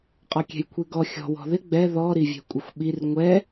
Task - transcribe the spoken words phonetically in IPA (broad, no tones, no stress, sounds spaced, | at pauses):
qʼ ɒ kʲ ɛ̤ j kʷʰ i ɡ ɔ xʲ ɔ̤ w ɔ̤ ð ɪ ɡ͡b ɛ ð ɔ ɾ i vʲ ɛ̤ kʷʼ ɪ xʷ ɓ i r ŋʷ ɛ